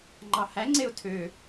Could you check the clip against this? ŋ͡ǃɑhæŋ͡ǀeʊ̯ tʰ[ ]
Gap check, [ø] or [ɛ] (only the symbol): ø